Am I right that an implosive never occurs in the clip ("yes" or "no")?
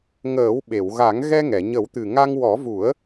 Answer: no